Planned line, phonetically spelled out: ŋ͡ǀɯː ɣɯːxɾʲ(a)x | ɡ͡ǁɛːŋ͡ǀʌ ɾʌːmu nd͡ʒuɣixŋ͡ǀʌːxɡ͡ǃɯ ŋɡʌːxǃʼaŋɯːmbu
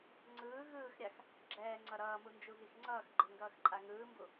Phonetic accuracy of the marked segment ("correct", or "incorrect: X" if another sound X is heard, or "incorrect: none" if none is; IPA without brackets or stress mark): correct